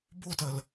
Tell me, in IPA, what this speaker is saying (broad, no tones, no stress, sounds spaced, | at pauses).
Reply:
b o t ɜ l